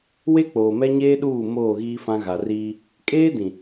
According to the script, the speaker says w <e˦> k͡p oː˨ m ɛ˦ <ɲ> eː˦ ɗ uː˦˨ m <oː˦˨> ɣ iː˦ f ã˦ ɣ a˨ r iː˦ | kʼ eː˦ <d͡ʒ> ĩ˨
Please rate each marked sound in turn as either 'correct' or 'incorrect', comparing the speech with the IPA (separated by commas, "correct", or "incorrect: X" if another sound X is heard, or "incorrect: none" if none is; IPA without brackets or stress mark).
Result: correct, correct, correct, incorrect: d